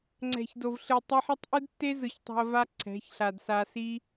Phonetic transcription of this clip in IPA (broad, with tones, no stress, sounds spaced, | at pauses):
ŋ͡ǀ ɛ̤˨ ç d o˨ v ɬ ɯ˨ tˤ a˧ ħ ʌ˦ tˤ ʔ ɯ˦ d tː e˦ z ɯ˨ ç tˤ a̤˧ ɐ̯ v a˦ ǀʰ ɛ̤˨˦ ç ɬ a˨ d s a˧ s i˦